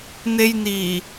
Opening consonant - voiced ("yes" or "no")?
yes